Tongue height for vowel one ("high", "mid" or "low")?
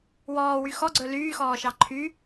mid